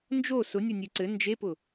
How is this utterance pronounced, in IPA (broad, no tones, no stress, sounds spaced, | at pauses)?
n d͡ʒ o s ʊ nʲ ʊ nʲ ʉ ǀ ɘ n d͡ʒ e p ʊ